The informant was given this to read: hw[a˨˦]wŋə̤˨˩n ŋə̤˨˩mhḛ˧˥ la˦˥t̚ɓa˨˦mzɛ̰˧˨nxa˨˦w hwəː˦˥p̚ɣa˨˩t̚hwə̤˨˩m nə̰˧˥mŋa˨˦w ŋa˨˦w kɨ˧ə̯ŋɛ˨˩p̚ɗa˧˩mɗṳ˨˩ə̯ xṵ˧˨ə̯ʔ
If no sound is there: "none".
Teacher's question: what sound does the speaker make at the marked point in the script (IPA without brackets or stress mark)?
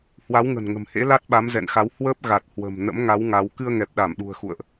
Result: a˨˦